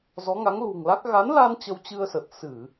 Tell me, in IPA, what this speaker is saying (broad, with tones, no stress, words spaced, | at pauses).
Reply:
zɔ˨˦ŋa˨˦ŋlṳ˨˩ŋla˦˥k̚ ɣa˨˦nla˧n t͡ɕə˧wt͡ɕɨ˧ə̯sə˨˩t̚ sɨ˧˩˨